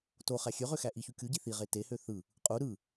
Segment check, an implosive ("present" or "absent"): absent